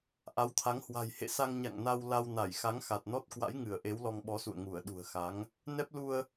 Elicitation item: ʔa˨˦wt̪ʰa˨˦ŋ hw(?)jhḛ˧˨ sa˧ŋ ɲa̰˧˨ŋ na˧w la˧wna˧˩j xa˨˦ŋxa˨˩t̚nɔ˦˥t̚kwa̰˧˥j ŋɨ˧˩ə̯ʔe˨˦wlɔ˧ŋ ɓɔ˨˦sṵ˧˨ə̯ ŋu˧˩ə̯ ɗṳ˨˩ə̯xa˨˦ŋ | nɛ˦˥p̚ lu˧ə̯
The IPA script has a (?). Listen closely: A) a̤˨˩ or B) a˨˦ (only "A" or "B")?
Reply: A